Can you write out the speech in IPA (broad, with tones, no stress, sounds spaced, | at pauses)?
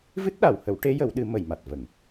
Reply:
v ɨ˦˥ t̚ ɗ a˨˩˨ w h ə˨˩˦ w ʈ e˧˥ j ə˨˩˦ w ɗ ɨ˨˩˦ m ə˨˩˨ j m a˨˩ t̚ v ə˨˩˨ ŋ